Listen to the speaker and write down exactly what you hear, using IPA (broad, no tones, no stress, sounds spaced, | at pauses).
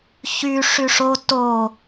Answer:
ç y ʂ y ʂ o t o